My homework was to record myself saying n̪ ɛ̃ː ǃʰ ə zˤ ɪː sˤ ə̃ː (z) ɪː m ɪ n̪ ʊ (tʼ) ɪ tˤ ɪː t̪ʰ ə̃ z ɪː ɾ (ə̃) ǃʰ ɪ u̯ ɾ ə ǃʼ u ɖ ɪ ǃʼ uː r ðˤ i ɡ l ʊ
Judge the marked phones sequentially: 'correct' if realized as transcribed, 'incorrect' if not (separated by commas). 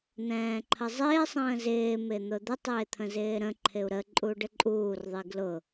correct, incorrect, correct